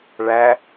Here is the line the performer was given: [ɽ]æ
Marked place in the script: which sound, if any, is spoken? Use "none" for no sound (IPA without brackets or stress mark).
ɭ